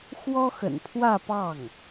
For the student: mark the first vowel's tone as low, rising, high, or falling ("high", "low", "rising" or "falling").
high